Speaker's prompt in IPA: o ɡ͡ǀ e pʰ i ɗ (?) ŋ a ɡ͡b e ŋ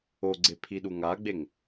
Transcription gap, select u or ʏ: u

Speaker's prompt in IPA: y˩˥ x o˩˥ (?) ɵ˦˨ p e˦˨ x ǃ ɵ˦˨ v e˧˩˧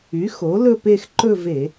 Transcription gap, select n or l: l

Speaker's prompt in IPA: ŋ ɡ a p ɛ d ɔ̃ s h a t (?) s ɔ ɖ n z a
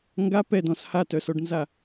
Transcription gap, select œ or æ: œ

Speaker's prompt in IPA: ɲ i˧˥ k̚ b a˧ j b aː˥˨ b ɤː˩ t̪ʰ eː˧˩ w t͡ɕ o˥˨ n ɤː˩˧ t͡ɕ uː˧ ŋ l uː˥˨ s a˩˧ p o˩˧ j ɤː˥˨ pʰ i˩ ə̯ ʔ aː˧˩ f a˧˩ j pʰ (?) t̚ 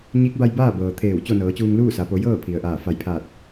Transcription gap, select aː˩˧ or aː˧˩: aː˧˩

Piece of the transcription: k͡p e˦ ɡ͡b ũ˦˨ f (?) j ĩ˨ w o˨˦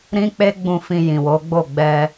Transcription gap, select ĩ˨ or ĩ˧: ĩ˧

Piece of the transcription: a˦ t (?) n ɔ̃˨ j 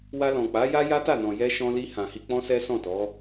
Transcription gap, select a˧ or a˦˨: a˦˨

